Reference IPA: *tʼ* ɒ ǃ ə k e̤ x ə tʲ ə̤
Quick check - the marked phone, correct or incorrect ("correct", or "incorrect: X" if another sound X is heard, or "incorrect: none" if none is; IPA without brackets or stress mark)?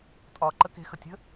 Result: correct